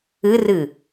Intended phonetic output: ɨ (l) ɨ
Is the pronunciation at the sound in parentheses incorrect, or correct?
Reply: incorrect